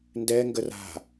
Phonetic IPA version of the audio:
n d ɛ ŋ ɡ ə r a̤

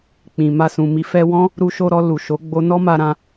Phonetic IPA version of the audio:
k͡p ĩ˨ m a˧ s ũ˨ m i˨ f ɛ˧ w ɔ̃˦ | ɾ u˧ ʃ o˧ ɾ ɔ˧ l u˨ ʃ o˨˦ ɡ͡b o˦ n ɔ˦ m a˧ ɾ ã˧

